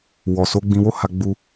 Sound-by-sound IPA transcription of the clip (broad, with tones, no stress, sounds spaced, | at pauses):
w ɔ˨ s o˨˦ ɡ͡b ĩ˧ w o˦ h a˧ ɡ͡b u˧